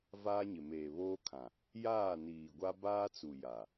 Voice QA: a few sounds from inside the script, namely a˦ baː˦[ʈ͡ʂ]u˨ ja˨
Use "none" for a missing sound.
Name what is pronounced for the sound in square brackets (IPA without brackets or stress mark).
t͡s